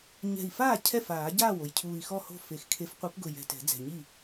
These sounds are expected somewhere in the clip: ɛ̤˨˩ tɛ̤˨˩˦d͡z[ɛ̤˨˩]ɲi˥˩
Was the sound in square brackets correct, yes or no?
yes